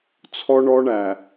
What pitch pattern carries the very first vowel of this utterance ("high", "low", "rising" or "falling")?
high